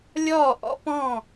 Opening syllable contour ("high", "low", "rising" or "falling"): falling